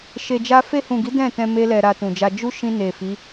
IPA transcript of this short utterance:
ʃ e˧ d͡ʒ a˦ f e˧ h ũ˨ ɡ i˨˦ d ɛ̃˦˨ t ɛ̃˧ m e˦ l ɛ˧ ɾ a˧ t ũ˨ d͡ʒ a˧ d͡ʒ u˦ ʃ ĩ˧ n e˨ f i˨˦

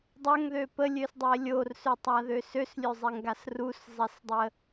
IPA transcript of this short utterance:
dˤ ə ŋ ð ø p ə lʲ ø s dˤ e lʲ o r s ø tˤ a ð ø s ø s lʲ ø zˤ e ŋ ɡ a s r u s zˤ e s dˤ ə

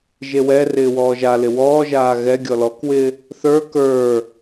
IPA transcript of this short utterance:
ʒ e w ɛ r ɪː w ɔː ʒ a l ɪ w ɔː ʒ aː ɣ ɛ ɡʲ ɔ l ɔ k w ɪː | θ ə˞ k ə˞

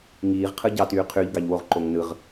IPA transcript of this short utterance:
ŋ iː ʁ qʰ ɯ ɟ ɑ t yː qʰ y ʎ ɡ ɑ ʎ w o ʁ ǃ o ŋ n ɯ ʁ

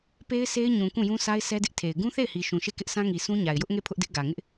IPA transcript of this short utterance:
p e˦ ɪ̯ sʰ e˦ ɪ̯ ɲ ũ˨ k ũ˦˨ j ũ˦ sʰ a˦ ɪ̯ sʰ ɛ˦ d ɪ˦ ʔ tʰ e˨ ɪ̯ ɡ ũ˦ θ e˦˨ ɪ̯ h i˨ ʃ ũ˨ ʃ e˦˨ k ɪ˦ ʔ sʰ ã˦ ŋ i˨ sʰ ũ˦ ɲ a˨ ɪ̯ j ʊ˦ ʔ ŋ e˦˨ pʰ ʊ˦ ʔ d ɪ˦ ʔ ɡ ä˨ ŋ ɪ˦ ʔ

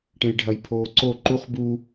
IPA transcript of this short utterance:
ʈ ẽ j ɖʱ ɐ j pʰ oː ǀ o ǃ u χ b u

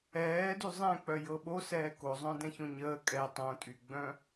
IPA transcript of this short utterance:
ɛː d y zˤ ɛ̃ k͡p œ j ɤ ɓ o s ɛː k o zˤ œ̃ d ɛ̃ ç õ ɲ əː kʼ ɛ tˤ õ tʼ y ɡ͡b œ̃

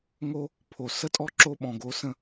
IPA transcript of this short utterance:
ŋ o˦ | pʰ o˨ s ə˦ tʼ ɔ˦ ǁ o˧ ɓ ɔ̃˨ ɡ o˨˦ s ə̃˦˨

